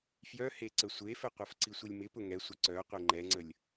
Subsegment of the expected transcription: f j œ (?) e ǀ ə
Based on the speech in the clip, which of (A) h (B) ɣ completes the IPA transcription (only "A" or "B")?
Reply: A